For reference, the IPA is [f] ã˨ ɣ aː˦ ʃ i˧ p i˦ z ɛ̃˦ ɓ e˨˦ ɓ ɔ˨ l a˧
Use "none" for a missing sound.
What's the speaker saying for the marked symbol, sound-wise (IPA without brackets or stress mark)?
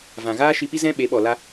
v